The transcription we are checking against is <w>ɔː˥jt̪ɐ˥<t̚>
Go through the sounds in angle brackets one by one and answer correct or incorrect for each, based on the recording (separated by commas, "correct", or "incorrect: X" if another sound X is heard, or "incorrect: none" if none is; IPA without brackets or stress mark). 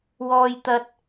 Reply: correct, correct